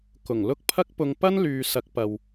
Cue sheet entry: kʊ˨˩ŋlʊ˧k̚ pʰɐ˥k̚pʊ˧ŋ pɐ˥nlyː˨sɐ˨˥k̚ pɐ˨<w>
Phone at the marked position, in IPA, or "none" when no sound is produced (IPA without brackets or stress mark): w